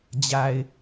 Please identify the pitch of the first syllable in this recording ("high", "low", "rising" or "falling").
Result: low